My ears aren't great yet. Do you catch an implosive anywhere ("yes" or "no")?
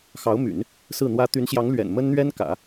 no